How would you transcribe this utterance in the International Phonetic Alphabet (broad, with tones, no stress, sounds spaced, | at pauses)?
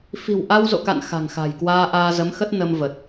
f i̤˨˩ w ʔ a˧ w z o̰˧˨ k a̰˧˨ n x a̤˨˩ ŋ x a̤˨˩ j k w aː˧ ʔ aː˧ z ə˨˦ m x ə˦˥ t̚ n ə˧ m v ə˨˩ t̚